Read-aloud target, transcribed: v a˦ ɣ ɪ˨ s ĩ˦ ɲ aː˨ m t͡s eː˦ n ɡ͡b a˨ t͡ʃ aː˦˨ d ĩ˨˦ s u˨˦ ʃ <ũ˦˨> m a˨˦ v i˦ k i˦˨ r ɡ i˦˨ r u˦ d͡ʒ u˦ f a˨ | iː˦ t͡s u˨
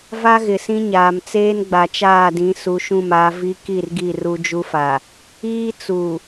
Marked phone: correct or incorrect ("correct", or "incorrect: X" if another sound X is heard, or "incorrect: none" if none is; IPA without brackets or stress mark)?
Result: correct